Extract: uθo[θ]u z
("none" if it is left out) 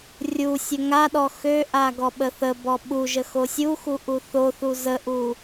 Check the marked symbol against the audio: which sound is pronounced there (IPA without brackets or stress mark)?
θ